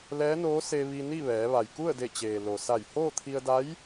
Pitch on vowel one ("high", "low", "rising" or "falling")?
rising